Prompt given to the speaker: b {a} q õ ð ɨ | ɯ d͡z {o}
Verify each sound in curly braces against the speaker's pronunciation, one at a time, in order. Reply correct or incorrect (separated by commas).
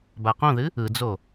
correct, correct